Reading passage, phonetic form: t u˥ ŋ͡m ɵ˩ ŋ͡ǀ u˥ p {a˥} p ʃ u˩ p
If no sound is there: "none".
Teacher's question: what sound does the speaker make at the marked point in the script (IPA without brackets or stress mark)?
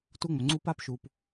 a˥